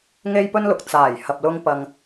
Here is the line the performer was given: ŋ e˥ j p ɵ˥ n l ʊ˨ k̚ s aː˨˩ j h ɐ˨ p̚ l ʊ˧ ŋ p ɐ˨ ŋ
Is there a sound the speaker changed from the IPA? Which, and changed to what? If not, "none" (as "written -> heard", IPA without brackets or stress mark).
s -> t͡s